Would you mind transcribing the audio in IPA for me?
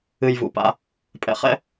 ɨ˧ j v ṵ˧ p a̰˦ | pʼ ɛ̰˧ χ ɛ̰˦

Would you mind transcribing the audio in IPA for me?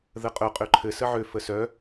ð ə qʼ œ qʼ ø ǃʰ ɘ s ə ʕ ø f ə s œ

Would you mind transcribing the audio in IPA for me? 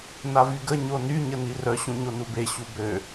n a v y ɡ ə ɲ o n y ɲ ə n i r œ ɕ ũ ɲ o n u b e ɕ u b ø

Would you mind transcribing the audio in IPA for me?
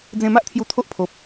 d͡z ẽ˧ m a˦ ʔ t̪ʰ j u˧ t̪ʰ o˦ ʔ pʰ o˨ p̚

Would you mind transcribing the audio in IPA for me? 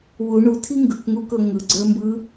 w u ɳ u tʰ i ŋ ɡ ɯ k ŋ u k ɤ ŋ ɯ ɡ͡ǀ ə˞ m b ɯ

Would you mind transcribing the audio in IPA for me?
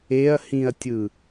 e ɐ̯ h ĩ ɐ̯ tʲ ɯ

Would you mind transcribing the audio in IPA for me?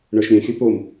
ɳ ə˞ ʃ ɾʲ ɛ̃ xʲ o t̪ o m

